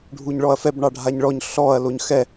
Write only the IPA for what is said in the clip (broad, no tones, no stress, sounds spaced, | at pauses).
ɖʱ u ɲ ɭ ɔ ɐ̯ f ɛ b ɳ ɑ ɖʱ a ɲ ɭ ɔ ɲ ɬ ɔ ɐ̯ l o ɲ x ɛ